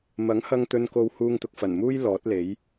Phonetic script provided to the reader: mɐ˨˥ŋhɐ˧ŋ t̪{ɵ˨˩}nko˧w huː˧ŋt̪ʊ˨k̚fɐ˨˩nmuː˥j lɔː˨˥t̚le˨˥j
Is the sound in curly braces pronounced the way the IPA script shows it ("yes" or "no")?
no